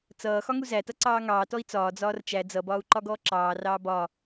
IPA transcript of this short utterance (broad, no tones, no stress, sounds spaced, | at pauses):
t͡s ʌː x ɒ ŋ u z æ t ʌ ǀ ɑː ŋ ɑː t ɔ i̯ t͡s ɒː d͡z ɒː r t͡ʃ æ d͡z ʌ b ɒː u̯ ǃ ɒ ɡ ɔː ǁ ɑː r ɑː b ɒ